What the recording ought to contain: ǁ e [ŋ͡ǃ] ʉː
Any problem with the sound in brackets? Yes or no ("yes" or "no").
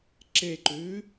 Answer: yes